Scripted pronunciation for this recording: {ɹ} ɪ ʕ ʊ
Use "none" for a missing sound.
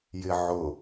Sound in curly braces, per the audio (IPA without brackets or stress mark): j